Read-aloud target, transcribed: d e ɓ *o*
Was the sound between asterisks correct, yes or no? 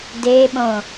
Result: no